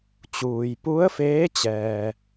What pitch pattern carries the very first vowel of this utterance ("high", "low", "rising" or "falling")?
low